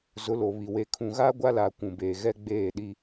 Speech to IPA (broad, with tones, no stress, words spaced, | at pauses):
zʊ˨˦lo˨βi˨ we˨kʰũ˨ɣa˦ ɡʷa˦laː˨ kʷũ˨beː˨ ɣɛ˦ ɡ͡beː˦˨ɗi˦